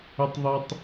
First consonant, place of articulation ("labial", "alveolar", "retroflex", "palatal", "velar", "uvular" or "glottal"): alveolar